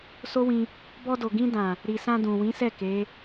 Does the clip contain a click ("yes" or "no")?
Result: no